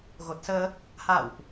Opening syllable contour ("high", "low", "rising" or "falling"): low